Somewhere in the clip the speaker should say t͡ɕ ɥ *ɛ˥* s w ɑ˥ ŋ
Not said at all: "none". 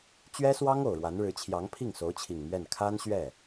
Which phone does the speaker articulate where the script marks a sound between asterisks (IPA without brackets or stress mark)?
ɛ˥